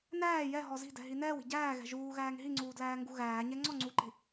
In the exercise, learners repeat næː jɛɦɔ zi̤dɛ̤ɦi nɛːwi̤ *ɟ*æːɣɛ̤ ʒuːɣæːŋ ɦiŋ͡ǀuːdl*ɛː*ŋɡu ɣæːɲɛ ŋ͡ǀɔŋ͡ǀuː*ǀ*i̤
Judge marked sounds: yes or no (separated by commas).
yes, no, no